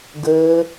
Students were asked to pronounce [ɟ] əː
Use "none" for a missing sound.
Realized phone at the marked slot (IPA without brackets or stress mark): ɡ